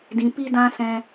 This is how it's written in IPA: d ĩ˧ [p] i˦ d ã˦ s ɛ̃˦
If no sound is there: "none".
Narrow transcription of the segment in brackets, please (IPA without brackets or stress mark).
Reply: p